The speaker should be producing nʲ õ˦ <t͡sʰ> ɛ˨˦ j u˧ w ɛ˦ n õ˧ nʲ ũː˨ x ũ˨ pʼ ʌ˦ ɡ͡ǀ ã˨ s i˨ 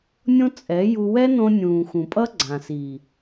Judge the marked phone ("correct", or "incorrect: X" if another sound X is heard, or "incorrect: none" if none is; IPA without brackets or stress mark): incorrect: t͡sʼ